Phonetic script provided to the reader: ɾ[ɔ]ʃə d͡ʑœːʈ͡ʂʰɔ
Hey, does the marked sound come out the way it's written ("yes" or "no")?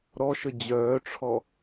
yes